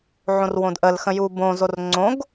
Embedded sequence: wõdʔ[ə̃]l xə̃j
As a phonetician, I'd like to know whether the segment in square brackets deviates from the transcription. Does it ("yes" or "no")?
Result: yes